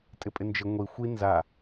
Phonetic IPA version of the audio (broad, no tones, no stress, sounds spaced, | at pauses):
tʼ ɪ pʼ ɪ n d͡ʒ ɪ ŋʷ i xʷ i n z a